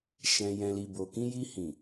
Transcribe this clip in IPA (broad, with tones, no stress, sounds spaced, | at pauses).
ʃ ɛ̃˨ j ɛ̃˨ l i˨ b o˨ k ĩ˧ j i˧ h ĩ˨